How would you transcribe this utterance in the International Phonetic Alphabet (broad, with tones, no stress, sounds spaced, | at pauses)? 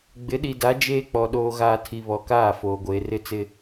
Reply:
ɡ͡b ɪ˨˦ ɗ i˨ d a˨˦ d͡ʒ eː˦ k͡p ɔ˨ ɗ oː˨ ɣ aː˨ tʰ i˨ β ɔ˨ k aː˦˨ f oː˨ ɡʷ eː˨ r ɪ˦ t͡s ɪ˦